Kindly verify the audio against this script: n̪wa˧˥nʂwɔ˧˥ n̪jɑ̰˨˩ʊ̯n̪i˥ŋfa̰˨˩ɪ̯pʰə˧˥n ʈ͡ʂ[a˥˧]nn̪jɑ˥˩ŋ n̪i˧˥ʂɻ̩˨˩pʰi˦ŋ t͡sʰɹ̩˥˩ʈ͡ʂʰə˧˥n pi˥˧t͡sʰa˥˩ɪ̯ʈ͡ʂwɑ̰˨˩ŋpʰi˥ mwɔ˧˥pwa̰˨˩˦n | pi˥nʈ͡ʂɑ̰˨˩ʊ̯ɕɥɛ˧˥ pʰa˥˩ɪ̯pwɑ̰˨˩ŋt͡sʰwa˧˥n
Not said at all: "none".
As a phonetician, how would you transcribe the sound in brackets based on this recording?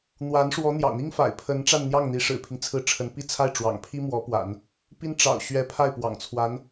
a˥˧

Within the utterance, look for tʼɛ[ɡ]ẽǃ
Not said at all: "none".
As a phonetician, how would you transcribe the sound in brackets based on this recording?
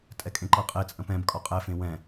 kʼ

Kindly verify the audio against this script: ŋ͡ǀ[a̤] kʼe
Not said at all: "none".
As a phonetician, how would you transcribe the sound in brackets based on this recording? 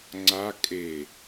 a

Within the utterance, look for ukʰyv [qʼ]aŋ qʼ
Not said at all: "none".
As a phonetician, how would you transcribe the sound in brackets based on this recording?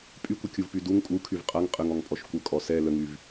qʼ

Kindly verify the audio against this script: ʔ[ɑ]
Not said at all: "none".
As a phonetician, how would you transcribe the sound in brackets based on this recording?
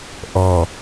ɔ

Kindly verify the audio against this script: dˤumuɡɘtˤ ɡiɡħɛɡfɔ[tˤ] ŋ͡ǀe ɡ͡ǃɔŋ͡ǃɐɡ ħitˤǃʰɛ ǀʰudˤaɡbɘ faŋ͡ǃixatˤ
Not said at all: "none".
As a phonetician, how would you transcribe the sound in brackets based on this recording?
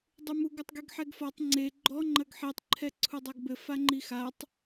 tˤ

